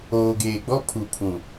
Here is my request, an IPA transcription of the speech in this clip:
oː˨ ɡ eː˨ ɡ͡b ɔ˦ pʰ u˨ pʰ ũ˨

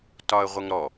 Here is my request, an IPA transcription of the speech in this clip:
t ɒ ə̯ ʁʷ ə ŋ ɾ ɔ

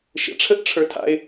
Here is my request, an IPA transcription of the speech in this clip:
ʃ ə̰ ʈ͡ʂʰ ə ʔ ʈ͡ʂʰ ə˞ tʰ a̰ ɪ̯

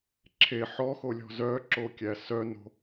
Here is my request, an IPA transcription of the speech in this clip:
ǁʰ e ħ ɔ x o lʲ ɔ̤ z œ ǁ o kʲ æ s œ n o̤

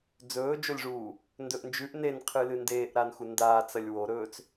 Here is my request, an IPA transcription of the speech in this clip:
d͡z ɵː d͡ʒ o lʲ ʐ uː | n d ɵ ʔ n d͡ʒ ʉ ʔ n e n qʰ ɨ l ɨ n d eː ʔ ɾ a n x u n d aː t͡s ɐ lʲ w o ɾ ɵː t͡s

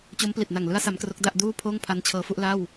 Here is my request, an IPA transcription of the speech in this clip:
t͡ɕ o˦˥ m p l i˨˩ t̚ n a˨˩ ŋ l ɯ˦˥ a̯ s a˦˥ m k r o˦˥ k̚ d a˥˩ ʔ d uː˥˩ pʰ oː˥˩ ŋ pʰ a˦˥ n t͡ɕʰ ɤː˦˥ f u˥˩ ʔ l a˥˩ w

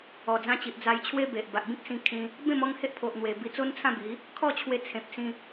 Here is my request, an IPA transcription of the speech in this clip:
ɔ˨˩ d͡z ã˧ t͡ɕ i˨ ʔ d͡z a˧ j t͡ɕʰ w e˦ b e˨ ʔ b a˨ ʔ b ĩ˦ k̚ s ĩ˧ kʰ ĩ˧ | b ẽ˥˧ m ɔ˥˧ ŋ h e˦ ʔ pʰ o˨ ʔ n̪ w e˨˩ b i˧ t͡s o˦ n t͡sʰ ã˥˧ b i˨˦ | kʰ ɔ˥˧ t͡ɕʰ w e˧ t͡sʰ ẽ˨ p̚ s ĩ˧

